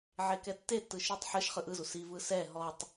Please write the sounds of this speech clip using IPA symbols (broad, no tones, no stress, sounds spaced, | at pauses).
ʕ e k ɛ tː e tː ɯ ʃ ɯ tˤ ħ ɯ ʃ χ ɯ ʔ ɯ z u s i v ɯ s ɛ ɦ ɔ tˤ